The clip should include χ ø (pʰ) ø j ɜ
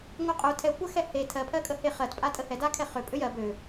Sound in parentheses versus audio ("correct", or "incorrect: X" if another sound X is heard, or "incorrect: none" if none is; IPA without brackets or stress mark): incorrect: pʼ